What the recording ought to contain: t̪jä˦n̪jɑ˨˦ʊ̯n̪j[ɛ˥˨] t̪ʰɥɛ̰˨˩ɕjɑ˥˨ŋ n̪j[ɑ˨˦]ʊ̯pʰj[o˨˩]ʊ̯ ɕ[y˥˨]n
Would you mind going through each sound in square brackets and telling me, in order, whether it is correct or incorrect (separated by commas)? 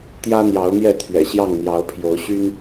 correct, correct, incorrect, incorrect